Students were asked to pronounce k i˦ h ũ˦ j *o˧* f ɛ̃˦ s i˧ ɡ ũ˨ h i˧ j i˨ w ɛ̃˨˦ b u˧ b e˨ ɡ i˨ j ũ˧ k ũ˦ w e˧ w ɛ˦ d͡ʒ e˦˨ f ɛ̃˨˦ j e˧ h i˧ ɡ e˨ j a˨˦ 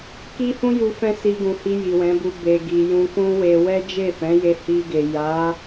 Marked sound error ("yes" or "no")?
yes